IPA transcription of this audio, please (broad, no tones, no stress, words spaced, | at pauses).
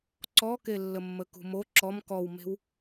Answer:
ǀɔkelːəmːə kṳmo ǁɔm kɔwme̤w